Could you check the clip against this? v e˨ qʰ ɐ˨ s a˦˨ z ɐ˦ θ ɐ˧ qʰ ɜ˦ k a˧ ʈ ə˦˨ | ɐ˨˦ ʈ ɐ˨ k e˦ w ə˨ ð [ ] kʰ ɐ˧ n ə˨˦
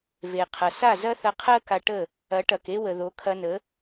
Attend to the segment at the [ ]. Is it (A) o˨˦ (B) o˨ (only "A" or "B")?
A